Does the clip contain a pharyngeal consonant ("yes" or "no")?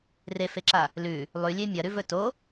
no